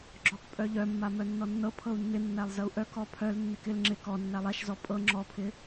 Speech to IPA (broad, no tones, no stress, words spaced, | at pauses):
ɡ͡ǁɔk pʼœʎœmːa mœnːɔnːɤ pʰɤu̯nːɪnːælˠ zəu̯ʔœ kɔpʰœl nːɪkɪl ŋ͡ǁɪ kɔ nːælˠæʃzɔ pʼɤ ŋ͡ǁɔpʰɪ